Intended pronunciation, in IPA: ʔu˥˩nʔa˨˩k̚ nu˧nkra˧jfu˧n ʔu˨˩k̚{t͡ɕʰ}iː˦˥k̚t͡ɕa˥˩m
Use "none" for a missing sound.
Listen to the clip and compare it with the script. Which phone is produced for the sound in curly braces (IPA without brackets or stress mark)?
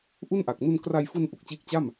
t͡ɕ